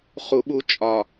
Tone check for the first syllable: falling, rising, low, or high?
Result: low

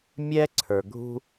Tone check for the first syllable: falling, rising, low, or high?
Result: high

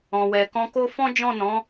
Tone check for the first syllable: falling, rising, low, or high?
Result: low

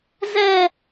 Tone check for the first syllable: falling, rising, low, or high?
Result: high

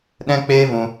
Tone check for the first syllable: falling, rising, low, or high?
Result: high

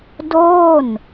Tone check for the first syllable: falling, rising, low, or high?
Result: falling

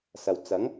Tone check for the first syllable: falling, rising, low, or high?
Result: low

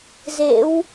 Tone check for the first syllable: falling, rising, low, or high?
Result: rising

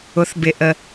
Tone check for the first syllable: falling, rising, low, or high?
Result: rising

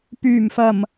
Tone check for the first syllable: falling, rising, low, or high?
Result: low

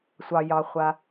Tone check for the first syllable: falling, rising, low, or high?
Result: low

